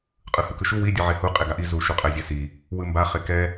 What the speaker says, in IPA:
qʼ ɯ h ɯ k ɯ ʃ u w i dʲ ɯ ʕ e h u qʼ e ɡ a ʔ i z u ʃ u qʼ ɛ zʲ e s i | w ɯ m b a χ e k ɛ

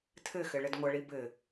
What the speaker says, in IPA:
tʰ ɘ x ɘ ɭ ɘ d ŋʷ ɐ ɭ i b ɘ

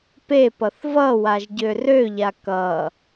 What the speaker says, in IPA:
p e p ʌ θ v ʌ w a ʒ ɟ ø r ø ʎ a k ʌ

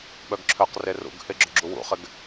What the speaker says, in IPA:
ɓ œ ɡ ǁʰ œ q r e r ṵ ɡ h ɪ ɡ͡ǁ ʊ ɡ͡ǁ u w ṵ χ ɪ ɡ

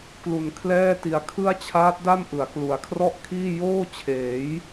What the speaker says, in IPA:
k l u˧ n kʰ l ɛː˥˩ t i˧ a̯ kʰ ɯ˥˩ a̯ t͡ɕʰ aː˦˥ t̚ d a˥˩ m ʔ ɯ˩˦ a̯ k l u˩˦ a̯ kʰ r ɔ˥˩ ʔ kʰ iː˥˩ j oː˥˩ t͡ɕʰ eː˩˦ j

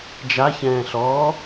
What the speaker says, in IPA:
d͡ʒ a ç ɛ̃ː ɬ ɔː

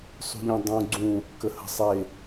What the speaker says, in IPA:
sˤ ṳ ʎ ẽ dˤ ũ ɡ͡ǀ ũ | k ə h ə̤ sˤ e

